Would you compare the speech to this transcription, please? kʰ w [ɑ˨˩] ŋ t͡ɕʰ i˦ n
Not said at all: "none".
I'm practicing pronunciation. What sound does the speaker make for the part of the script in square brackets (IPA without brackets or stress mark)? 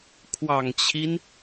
ɑ˨˩